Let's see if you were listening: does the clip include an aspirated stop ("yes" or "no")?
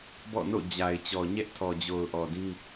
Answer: yes